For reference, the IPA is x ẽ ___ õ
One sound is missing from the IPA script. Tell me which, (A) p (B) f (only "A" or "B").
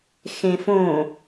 B